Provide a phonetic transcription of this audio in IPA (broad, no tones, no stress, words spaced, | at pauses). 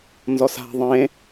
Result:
nzɔsa̤ ðˤẽ